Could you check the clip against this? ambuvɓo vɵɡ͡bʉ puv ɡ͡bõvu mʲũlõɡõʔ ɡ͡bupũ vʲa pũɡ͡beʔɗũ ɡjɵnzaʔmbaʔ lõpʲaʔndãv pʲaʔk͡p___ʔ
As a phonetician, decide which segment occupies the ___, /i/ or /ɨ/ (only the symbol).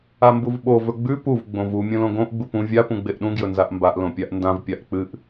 ɨ